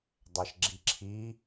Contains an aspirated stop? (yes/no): yes